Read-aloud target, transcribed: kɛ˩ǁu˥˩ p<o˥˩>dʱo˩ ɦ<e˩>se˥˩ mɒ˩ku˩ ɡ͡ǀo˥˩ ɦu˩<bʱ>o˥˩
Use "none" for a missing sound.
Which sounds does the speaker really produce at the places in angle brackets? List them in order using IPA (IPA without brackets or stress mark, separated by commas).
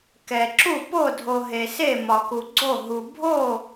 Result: o˥˩, e˩, bʱ